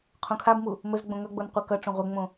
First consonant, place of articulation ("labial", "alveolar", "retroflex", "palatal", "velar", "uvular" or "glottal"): uvular